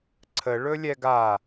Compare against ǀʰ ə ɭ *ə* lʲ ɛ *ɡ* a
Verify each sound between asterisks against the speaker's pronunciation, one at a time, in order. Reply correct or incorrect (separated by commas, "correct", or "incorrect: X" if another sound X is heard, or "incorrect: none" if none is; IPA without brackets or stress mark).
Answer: incorrect: ɵ, correct